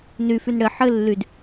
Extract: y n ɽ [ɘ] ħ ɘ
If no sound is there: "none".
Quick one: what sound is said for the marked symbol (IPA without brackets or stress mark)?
ɘ